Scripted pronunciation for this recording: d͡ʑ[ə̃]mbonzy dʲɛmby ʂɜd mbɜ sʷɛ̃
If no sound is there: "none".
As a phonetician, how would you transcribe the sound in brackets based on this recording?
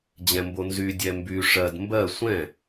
ɛ̃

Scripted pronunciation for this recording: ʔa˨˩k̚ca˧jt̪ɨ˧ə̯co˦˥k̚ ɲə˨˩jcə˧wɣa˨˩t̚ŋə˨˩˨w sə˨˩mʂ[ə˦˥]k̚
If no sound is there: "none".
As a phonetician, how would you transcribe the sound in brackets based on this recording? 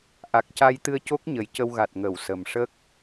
ə˦˥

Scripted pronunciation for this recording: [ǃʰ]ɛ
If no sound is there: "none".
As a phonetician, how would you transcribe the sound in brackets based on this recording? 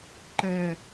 ǃ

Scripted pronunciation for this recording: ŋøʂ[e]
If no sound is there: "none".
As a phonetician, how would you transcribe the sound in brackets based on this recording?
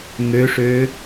ø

